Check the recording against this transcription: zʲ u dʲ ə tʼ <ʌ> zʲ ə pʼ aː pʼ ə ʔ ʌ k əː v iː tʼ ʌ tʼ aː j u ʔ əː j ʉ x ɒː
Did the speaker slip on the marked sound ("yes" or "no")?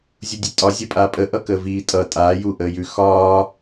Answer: yes